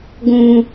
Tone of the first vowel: low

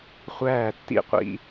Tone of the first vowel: falling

